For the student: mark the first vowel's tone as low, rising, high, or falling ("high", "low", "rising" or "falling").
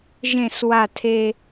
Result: falling